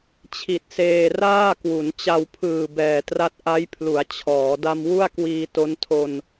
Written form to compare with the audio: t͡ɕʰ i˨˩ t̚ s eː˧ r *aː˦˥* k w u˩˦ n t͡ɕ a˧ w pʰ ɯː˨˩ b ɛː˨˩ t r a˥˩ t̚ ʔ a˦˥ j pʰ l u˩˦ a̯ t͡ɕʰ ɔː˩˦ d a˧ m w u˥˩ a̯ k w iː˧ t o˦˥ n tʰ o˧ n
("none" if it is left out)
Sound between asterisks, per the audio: aː˥˩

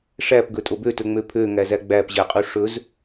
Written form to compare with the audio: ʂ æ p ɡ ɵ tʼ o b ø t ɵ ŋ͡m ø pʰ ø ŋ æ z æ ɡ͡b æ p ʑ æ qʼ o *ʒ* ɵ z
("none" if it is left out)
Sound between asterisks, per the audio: ʂ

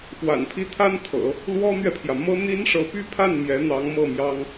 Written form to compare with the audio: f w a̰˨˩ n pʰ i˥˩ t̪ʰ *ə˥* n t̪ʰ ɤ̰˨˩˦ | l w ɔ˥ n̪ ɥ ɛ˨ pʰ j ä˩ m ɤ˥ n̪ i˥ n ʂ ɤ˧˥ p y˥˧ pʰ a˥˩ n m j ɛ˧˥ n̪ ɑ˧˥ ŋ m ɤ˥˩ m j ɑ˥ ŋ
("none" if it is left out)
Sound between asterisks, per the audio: a˥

